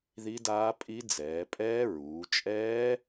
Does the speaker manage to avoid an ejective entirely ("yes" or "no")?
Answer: no